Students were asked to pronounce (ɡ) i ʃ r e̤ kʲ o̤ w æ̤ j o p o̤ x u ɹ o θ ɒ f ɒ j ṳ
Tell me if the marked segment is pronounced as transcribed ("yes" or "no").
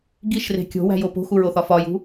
yes